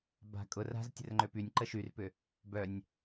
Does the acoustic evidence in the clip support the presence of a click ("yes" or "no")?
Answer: yes